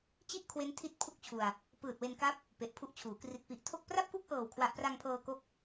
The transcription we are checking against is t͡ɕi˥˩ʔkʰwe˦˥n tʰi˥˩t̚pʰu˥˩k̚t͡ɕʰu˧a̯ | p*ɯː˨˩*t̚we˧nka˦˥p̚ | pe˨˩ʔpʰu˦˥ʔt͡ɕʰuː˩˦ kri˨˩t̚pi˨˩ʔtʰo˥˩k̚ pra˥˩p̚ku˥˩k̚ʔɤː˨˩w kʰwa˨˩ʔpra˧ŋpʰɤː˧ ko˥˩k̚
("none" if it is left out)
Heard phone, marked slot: ɯː˨˩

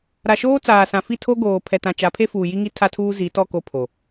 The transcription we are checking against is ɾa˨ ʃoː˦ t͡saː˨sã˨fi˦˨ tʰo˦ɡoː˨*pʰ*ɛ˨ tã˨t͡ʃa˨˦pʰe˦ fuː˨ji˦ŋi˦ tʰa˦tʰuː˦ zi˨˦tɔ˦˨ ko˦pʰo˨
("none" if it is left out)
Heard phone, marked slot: pʰ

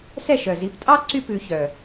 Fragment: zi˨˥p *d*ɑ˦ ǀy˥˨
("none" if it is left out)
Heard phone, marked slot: tʼ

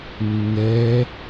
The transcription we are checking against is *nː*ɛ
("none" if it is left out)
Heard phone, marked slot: nː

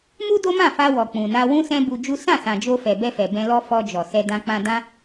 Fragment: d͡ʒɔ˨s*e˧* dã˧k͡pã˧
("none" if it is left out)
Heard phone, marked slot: ɛ˧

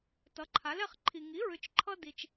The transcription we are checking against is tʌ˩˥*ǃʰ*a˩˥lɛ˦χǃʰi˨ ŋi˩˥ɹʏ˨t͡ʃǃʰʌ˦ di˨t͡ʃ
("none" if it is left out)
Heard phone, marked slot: ǃʰ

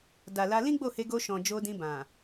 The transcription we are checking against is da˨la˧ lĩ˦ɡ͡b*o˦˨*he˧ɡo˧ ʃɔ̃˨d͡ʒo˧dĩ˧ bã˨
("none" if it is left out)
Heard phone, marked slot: o˦˨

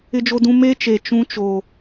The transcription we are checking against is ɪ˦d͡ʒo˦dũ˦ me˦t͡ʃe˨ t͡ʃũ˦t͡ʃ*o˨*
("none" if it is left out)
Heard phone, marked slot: o˨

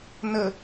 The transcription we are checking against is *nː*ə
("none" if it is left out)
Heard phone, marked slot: n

